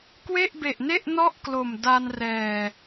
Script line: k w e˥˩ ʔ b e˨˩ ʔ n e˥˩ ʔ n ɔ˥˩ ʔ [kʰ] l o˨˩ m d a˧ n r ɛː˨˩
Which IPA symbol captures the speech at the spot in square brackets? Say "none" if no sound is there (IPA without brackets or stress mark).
k